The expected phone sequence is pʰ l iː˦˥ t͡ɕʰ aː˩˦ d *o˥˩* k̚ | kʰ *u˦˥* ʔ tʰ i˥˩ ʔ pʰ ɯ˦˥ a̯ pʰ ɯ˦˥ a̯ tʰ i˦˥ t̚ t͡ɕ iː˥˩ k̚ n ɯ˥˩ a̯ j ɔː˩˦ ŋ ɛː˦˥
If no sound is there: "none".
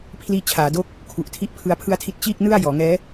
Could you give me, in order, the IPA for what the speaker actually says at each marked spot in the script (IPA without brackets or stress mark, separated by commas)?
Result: o˥˩, u˨˩